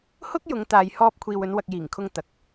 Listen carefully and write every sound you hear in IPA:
hʊ˥k̚jʊ˨˧ŋt̪aː˨j hɔː˧p̚kʷʰiː˨wɵ˨˧n wɐ˨k̚jiː˨˩ŋkʰʊ˧ŋ t̪ɐ˨˥k̚

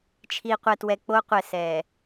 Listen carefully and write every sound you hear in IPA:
t͡ʃʰi˨qʷɛ˨twɛ˨ k͡po˦qʷɛ˨ sɛ˨

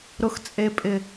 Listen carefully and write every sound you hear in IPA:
ɾʊ˨xt͡sʼe˨pʼɪ˨

